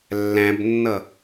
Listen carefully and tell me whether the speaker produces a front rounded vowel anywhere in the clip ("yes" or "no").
no